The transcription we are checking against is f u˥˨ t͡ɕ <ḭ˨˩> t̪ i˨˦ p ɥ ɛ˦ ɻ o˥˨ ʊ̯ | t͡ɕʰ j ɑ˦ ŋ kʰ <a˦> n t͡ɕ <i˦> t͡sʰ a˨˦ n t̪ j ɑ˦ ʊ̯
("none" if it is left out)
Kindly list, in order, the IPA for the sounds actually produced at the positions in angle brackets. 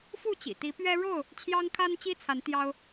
ḭ˨˩, a˦, i˦

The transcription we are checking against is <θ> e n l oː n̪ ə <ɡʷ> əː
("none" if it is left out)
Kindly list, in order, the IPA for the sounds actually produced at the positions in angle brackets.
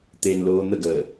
t̪, ɡ

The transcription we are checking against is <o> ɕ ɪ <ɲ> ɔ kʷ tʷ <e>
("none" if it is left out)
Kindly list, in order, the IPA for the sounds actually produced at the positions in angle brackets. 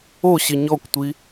o, ɲ, i

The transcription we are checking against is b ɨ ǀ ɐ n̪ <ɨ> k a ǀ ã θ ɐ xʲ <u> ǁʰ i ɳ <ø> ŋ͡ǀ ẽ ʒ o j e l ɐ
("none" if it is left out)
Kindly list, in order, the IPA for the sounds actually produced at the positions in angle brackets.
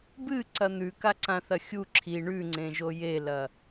ʉ, u, ʉ

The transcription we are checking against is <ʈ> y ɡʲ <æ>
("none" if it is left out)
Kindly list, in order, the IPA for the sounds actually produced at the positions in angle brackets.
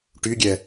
ʈ, ɛ

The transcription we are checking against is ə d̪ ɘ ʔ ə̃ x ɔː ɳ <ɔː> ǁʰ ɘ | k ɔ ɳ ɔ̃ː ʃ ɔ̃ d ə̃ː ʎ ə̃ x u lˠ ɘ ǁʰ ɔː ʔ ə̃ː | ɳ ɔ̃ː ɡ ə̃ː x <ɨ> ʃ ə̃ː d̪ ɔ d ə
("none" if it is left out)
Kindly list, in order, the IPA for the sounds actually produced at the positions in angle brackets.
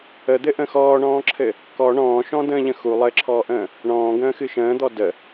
ɔ̃ː, ɨ

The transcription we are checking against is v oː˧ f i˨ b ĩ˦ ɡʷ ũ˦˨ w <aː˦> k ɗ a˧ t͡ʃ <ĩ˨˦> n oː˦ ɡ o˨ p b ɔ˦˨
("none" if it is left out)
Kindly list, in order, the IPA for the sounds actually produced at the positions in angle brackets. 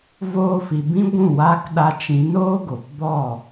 aː˦, ĩ˨˦

